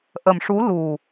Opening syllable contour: low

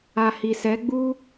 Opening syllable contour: low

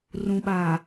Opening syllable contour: low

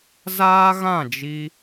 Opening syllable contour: high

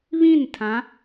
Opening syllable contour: falling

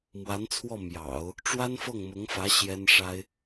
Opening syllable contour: rising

